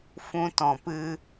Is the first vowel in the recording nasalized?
yes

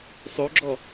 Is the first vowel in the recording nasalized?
no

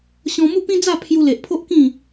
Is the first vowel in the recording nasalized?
yes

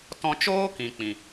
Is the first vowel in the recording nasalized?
yes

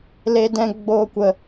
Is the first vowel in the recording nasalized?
no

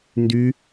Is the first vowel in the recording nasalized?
no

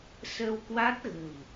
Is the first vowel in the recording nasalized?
no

